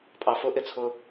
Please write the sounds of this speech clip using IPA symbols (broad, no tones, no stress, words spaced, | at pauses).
pʼɑfʊʔɪt͡sʰʊ